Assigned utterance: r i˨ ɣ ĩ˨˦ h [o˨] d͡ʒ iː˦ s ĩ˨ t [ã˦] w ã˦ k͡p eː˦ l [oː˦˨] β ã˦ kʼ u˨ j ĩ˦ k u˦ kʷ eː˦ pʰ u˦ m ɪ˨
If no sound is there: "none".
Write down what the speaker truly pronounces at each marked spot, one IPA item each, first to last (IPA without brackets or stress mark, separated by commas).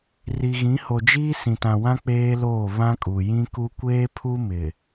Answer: o˨, ã˨, oː˦˨